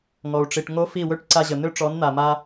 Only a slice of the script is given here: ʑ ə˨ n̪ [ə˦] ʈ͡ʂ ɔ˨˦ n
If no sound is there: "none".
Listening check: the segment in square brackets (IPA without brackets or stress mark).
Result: ø˦